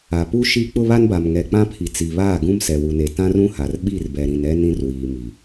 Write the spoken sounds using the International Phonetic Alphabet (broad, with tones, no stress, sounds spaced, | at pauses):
a˨ p u˦ ʃ i˦ k͡p ʊ˦ β a˦ n b a˨ m ŋ ɛ˨ k͡p ã˦ pʰ i˨ t͡s i˨ β aː˦˨ ɡ ũ˦ m s ɛ˨ w u˨ n e˨ t ã˦ r ũ˦ h a˨ r ɓ i˦˨ r b ɛ˨ ɾ ĩ˨ n ɛ˦ n ĩ˦ r w iː˨ m i˨